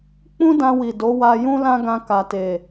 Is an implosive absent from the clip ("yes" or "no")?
yes